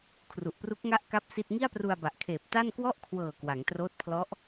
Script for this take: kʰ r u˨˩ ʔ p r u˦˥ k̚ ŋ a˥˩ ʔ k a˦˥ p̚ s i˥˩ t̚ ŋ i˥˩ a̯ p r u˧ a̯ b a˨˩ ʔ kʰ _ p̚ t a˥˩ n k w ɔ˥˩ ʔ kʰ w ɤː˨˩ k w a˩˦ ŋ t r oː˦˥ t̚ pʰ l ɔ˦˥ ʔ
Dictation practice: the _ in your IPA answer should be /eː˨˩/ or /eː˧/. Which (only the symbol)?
eː˨˩